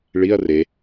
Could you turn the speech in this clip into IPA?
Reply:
ɭiɐ̯ re

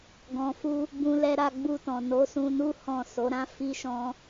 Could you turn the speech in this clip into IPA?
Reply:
ɡɔ̃˨fu˧ | bũ˧lɛ˧ɾa˧ ɡ͡bu˧tɔ̃˨ no˨˦sũ˧nu˦ hɔ̃˦˨ so˨˦ɾã˦ fi˦ʃɔ̃˦

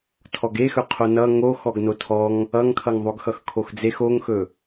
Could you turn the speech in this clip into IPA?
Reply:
tʰɔɡexɵ qʰonʌ ŋo xɔɡnotʰɔŋ | ʌŋkʰʌŋðˤoɡ xʌxkʰoxd͡zex oŋxɵ

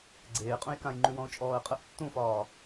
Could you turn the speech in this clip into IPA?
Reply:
ɡ͡ǀeːqʼũjkãjŋ͡ǃʉ wɔ̃ʊ̯t͡ʃʼɔːə̯qʼəʔ tːũfɒː

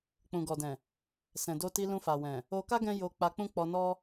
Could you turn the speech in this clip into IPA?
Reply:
k͡pũ˨ɡɔ˨dɛ̃˨ | sɛ̃˨do˧ti˧ lũ˧fa˨wɛ̃˨ | o˧ka˦ ɡɛ̃˦jo˧k͡pa˧k͡pũ˦ k͡pɔ˧nɔ˦

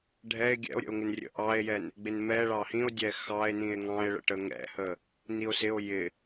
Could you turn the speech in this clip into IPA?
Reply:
ɖʱɛe̯ ɡʲɛ̰o̯ɾʲə̰o̯ŋɪnrʲə̰ ʔɑe̯jɛn | ɡ͡bɪnmɛ ɭɑhĩo̯dʲɛ xɑe̯nĩe̯ ŋɑ̃e̯ɭə̰ʈə ŋɛ̰hə | nio̯sɪo̯ jɪ

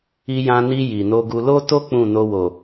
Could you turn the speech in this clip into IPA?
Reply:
i˧jã˧ni˧ ji˨no˧ɡu˧ lo˦to˦ k͡pũ˦˨no˧ wo˨

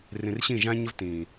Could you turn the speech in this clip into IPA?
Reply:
rĩ˨rɕĩ˦˨ ʒã˦ɲɘ˦v tĩː˨

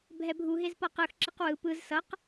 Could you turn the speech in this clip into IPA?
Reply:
bʱɛbʱu ɦezpʌqɯx ǁiqwɯ pɯz sʌq

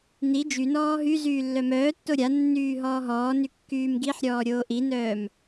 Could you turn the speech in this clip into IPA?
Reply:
ni d͡ʒynɔː ɦy zyːlːœmœːtːo ɾʲanːyː ɦɔːɦɔːny kːyːmɡiħɾʲɔː ɾʲoːʔinœːm

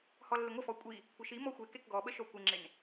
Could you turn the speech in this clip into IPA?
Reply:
hɔlːɪŋʷəfɔ kʷʼi | kʷʰɐʃi mɔxʷe kekɡɔɓəʃɔ kʷɪŋ͡ǁɪn

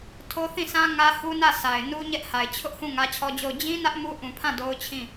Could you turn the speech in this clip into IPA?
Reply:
tʰo˦θĩ˦˨sʰã˦ ŋä˦hu˦nä˦˨ sʰa˨ɪ̯nu˦ ɲɛ˦ʔha˨ɪ̯ t͡ɕʰʊ˦ʔhũ˦˨ ŋä˦t͡ɕʰɔ˦d͡ʑo˦˨ʊ̯ d͡ʑĩ˦nä˦ʔ mu˦ʔũ˨pʰã˦˨ do˦ʊ̯t͡ɕʰĩ˦˨

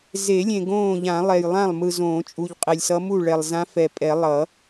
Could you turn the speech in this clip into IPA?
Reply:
ze˨˩˦lʲẽ˨ ɡõː˥˩ ʎã˨˩˦lˠɛ˨jlˠã˥˩lˠ mɯ˨zõː˨˩˦t͡ʃʼu˨ʎ qʼe˨lʲsʌ˧˥mu˥˩ ɭɛ˨lˠzã˧˥ fɛ˨pʼɛ˨˩˦ lˠʌ˨˩˦

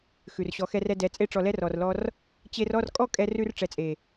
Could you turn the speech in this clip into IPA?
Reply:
xʉ˨rɕɔ˨˦xɛ˧r ɛ˧dɛ˨˦ t͡sʼe˧ʈ͡ʂɔ˨lɛ˧r ɔ˨rlɔ˧r | t͡ɕe˧rɔ˦˨r kʼɔ˦ kʼɛ˧rʉ˧r ʈ͡ʂɛ˨˦t͡sʼe˨

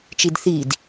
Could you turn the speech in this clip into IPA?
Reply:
t͡ʃidθid

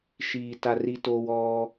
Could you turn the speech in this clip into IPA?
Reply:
ʃiː˨t a˧ri˦toː˦wɔː˦

